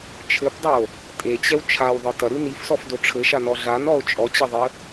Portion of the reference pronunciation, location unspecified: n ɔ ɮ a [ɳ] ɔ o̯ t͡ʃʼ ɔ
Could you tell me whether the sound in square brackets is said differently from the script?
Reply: yes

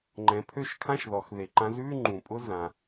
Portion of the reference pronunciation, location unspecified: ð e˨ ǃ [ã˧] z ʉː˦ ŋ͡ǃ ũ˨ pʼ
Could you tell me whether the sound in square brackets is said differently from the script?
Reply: no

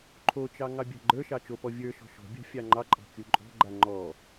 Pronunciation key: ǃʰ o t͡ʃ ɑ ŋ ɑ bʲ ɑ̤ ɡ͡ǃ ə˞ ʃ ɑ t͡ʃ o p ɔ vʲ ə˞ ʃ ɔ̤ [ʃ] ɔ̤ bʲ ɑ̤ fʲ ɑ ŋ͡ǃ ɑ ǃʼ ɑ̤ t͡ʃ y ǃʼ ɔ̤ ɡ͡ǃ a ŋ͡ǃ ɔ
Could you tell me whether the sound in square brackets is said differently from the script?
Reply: no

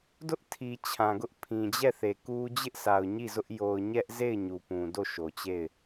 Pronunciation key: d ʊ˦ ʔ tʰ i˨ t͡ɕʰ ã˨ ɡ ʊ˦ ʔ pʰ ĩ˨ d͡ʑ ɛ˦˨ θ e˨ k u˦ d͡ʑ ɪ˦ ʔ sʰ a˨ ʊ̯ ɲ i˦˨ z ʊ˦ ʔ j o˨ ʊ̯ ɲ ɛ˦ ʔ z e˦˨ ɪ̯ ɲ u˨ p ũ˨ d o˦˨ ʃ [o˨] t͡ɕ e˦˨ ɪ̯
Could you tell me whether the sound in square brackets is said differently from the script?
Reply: no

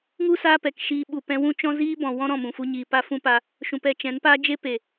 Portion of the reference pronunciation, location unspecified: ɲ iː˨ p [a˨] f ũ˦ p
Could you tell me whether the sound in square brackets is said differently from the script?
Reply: yes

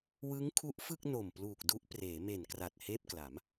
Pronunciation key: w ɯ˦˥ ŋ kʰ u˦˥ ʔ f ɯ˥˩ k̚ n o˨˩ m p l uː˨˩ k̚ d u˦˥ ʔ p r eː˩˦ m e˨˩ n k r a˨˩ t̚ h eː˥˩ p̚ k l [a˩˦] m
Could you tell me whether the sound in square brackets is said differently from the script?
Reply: no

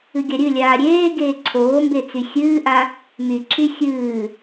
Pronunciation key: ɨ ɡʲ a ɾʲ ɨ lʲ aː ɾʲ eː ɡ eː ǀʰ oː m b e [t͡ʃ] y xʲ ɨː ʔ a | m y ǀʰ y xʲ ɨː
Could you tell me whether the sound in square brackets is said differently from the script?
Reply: yes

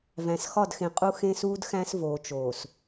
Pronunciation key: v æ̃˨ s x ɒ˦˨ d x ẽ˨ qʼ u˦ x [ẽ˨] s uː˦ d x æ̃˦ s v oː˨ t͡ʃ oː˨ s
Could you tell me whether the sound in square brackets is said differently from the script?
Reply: yes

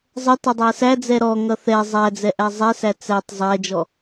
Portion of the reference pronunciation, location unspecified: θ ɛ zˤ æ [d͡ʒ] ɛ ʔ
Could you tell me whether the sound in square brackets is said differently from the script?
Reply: yes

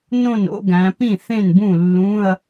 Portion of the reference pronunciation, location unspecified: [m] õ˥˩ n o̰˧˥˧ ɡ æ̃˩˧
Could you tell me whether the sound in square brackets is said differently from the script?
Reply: yes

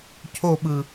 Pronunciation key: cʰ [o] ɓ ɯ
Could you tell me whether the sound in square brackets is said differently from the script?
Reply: no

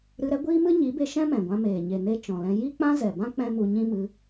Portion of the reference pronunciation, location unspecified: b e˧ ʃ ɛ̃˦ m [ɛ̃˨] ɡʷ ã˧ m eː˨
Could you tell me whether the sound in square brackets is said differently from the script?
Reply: no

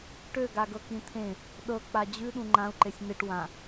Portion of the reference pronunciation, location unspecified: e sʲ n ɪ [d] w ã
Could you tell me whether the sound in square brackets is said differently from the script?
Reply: yes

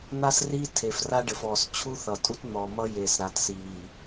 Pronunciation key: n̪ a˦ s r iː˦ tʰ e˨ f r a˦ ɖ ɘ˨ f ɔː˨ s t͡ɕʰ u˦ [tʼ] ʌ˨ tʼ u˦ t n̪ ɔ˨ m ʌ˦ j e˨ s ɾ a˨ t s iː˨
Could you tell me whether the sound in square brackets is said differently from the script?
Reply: yes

